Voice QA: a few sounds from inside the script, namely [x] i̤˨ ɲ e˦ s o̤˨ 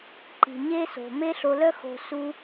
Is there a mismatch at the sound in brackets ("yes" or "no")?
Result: yes